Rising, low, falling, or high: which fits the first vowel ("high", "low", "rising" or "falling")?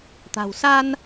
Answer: low